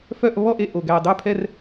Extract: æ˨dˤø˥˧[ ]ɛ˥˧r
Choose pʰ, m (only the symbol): pʰ